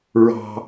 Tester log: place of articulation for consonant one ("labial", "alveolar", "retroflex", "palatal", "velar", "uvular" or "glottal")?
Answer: alveolar